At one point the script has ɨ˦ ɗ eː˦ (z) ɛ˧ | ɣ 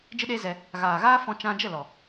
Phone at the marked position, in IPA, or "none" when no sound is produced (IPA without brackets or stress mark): z